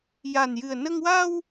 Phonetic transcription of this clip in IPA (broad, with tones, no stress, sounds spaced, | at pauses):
j a˨˩ n j ɨ˨˩ ə̯ n ə˧ ŋ w a˧ w